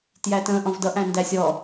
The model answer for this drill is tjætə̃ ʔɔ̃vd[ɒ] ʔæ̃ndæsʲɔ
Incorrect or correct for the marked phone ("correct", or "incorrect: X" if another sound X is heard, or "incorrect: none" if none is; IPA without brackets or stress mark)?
incorrect: ʌ